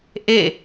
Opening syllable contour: falling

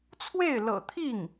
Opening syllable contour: falling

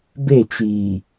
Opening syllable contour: falling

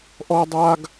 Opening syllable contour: high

